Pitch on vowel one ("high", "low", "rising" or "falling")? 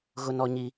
high